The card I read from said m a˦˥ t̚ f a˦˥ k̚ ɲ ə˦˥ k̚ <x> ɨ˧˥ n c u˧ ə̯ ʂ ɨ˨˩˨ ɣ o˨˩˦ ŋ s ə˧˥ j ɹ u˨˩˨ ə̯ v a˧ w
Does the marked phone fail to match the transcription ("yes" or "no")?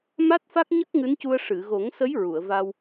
yes